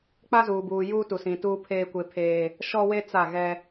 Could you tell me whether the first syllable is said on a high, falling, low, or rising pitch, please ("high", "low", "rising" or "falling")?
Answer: high